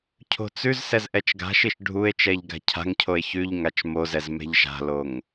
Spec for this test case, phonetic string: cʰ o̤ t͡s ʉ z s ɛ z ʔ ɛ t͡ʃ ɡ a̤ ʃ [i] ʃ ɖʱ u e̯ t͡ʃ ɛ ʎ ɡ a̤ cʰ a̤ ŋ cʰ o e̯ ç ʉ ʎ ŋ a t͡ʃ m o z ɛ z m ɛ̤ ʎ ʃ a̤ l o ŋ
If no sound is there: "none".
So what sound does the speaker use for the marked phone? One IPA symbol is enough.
i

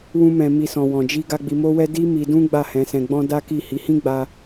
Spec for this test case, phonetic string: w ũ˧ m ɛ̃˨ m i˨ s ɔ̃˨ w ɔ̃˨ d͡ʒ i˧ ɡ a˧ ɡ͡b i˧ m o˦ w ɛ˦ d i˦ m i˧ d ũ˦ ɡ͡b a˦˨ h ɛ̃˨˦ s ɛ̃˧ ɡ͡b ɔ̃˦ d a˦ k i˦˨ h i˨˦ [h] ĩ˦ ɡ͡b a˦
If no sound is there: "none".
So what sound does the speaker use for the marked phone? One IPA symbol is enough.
h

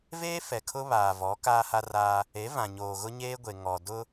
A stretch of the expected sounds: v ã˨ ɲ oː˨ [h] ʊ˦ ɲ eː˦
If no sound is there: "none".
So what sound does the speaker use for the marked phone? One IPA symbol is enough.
ɣ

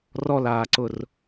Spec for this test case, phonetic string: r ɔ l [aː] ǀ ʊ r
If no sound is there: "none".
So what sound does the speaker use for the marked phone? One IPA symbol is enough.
aː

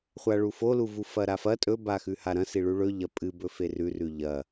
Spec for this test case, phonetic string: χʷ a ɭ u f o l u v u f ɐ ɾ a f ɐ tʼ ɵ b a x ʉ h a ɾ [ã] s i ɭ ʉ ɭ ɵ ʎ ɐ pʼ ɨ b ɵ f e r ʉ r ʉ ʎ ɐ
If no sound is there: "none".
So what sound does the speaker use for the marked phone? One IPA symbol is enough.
ɐ̃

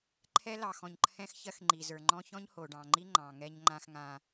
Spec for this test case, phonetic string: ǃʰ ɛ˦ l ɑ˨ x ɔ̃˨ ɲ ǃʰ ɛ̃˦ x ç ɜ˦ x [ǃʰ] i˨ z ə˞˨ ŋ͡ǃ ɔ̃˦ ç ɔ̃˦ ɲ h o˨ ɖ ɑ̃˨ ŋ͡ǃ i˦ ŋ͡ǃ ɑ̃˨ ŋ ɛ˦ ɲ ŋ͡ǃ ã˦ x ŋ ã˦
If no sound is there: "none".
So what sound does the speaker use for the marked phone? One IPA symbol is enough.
ŋ͡ǃ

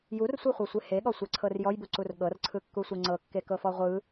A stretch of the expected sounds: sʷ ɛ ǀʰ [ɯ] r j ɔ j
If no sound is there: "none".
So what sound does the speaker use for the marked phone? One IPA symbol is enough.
ɤ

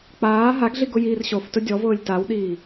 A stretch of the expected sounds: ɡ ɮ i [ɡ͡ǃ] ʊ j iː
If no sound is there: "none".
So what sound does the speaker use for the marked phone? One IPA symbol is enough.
ɡ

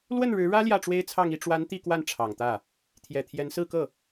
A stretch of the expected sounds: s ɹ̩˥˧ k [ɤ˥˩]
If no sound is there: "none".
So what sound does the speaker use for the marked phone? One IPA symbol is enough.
ɤ˥˩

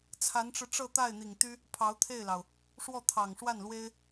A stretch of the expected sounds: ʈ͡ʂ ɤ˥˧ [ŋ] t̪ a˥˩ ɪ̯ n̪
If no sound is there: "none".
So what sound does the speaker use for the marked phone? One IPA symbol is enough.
none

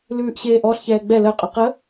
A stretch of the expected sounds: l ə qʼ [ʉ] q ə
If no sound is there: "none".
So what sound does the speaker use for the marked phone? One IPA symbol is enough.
ʉ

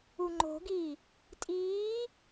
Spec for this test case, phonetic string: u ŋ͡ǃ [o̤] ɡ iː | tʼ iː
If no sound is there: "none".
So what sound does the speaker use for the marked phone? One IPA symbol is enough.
o̤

